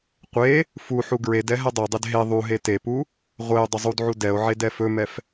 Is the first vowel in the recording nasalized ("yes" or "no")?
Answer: no